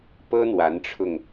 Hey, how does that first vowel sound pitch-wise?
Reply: high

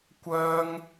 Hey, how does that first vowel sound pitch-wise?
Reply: high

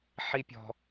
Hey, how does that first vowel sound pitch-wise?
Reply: high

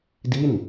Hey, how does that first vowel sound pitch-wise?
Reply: falling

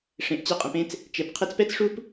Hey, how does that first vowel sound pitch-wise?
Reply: low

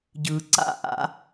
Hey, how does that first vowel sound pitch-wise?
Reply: low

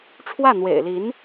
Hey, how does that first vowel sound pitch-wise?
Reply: falling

